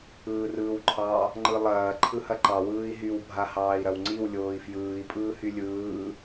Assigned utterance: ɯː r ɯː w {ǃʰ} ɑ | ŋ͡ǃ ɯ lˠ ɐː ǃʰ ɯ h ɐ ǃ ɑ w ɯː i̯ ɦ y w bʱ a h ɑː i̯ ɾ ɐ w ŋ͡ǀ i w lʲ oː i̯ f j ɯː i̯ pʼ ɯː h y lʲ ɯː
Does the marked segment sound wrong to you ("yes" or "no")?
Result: no